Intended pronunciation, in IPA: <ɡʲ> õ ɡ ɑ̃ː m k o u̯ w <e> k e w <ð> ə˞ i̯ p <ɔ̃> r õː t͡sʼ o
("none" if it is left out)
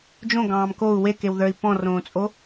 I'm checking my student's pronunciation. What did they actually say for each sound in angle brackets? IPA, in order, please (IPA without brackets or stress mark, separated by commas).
d͡ʒ, e, ð, ɔ̃